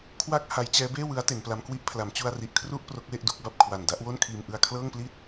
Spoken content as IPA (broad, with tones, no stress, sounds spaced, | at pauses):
kʰ w a˥˩ k̚ h a˦˥ j t͡ɕ ɛː˦˥ b eː˥˩ w ɯ˦˥ a̯ t e˩˦ n p l a˦˥ m k w i˥˩ ʔ pʰ l a˩˦ m t͡ɕ u˧ a̯ r i˨˩ ʔ kʰ r u˥˩ ʔ p r o˦˥ k̚ w e˥˩ ʔ d u˦˥ k̚ b a˨˩ p̚ kʰ w a˨˩ n d a˥˩ ʔ w o˥˩ n kʰ iː˧ m ʔ ɯ˧ a̯ kʰ l ɤː˥˩ ŋ p l i˥˩ t̚